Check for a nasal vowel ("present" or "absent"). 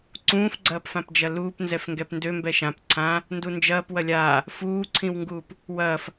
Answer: present